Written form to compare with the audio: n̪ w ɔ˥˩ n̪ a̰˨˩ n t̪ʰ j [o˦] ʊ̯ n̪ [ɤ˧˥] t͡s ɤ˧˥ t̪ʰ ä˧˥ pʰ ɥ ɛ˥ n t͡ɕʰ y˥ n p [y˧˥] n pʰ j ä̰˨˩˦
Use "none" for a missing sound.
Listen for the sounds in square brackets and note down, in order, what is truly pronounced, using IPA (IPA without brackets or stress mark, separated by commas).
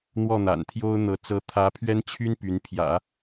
o˥, ɤ˧˥, y˧˥